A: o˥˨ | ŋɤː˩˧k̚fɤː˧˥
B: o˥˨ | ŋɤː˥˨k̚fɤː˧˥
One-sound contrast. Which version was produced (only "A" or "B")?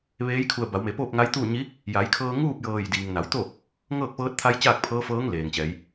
B